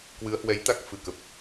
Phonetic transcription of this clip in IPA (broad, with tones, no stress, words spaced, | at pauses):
kwɨ˨˦ə̯hwɛ˨˦jt̪a˦˥k̚ fɨ˧˩kə˨˩p̚